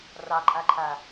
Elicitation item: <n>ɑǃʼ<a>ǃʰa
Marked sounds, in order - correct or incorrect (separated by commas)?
incorrect, correct